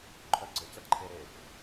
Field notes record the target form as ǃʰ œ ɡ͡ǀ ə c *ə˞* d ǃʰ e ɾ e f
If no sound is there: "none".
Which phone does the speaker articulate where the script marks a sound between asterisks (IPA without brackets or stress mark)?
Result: ə